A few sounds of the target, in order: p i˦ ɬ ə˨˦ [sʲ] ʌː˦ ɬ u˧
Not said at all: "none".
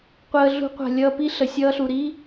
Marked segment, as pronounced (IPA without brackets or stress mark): sʲ